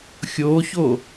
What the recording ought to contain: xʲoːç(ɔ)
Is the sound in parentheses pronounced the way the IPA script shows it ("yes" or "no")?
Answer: no